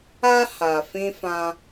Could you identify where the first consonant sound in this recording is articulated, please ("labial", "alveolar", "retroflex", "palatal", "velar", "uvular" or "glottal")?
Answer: glottal